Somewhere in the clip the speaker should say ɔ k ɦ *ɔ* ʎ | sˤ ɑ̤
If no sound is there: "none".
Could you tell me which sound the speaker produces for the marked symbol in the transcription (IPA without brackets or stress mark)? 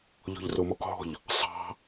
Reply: ɔ̤